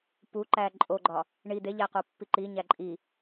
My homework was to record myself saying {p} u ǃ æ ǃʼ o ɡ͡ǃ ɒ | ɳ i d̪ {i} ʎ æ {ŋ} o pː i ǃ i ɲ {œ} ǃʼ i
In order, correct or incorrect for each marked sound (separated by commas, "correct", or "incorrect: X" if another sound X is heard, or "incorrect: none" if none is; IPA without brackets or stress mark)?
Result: correct, incorrect: e, incorrect: q, incorrect: æ